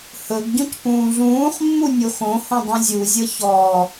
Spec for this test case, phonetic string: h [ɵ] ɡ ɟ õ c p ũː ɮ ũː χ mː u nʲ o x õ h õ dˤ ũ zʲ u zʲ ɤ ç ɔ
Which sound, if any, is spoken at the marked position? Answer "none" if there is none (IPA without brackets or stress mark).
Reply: ɵ